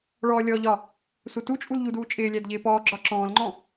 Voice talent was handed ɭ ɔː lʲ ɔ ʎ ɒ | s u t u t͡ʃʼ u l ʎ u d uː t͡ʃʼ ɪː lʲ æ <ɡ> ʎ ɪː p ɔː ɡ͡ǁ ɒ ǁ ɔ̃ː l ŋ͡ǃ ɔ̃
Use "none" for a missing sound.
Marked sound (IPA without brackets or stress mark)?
d